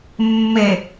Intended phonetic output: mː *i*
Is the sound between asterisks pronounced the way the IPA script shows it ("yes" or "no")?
no